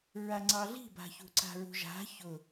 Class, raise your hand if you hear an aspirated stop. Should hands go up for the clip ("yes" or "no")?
no